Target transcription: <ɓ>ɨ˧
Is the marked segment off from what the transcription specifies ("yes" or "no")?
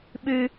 no